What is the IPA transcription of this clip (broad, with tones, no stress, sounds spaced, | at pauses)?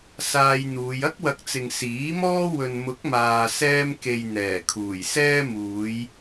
s aː˧ j n̪ uː˨˧ j ɐ˥ k̚ w ɐ˨˥ k̚ t͡s ɪ˨ ŋ s iː˨˥ m ɔː˥ w ɵ˨ n m ʊ˨˥ k̚ m aː˨ s ɛː˧ m k e˨ j n̪ ɛː˨˩ kʰ uː˨˩ j s ɛː˥ m uː˨˧ j